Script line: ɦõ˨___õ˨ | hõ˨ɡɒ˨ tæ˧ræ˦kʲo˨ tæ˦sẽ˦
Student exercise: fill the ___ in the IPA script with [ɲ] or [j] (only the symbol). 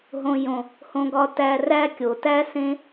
j